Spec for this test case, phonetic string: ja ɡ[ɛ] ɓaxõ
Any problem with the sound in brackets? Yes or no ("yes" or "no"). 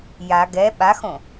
no